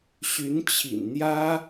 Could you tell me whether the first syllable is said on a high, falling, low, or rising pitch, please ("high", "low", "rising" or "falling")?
rising